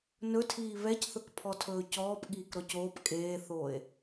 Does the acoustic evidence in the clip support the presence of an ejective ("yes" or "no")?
yes